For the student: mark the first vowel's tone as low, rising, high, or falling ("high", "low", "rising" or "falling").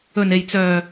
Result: low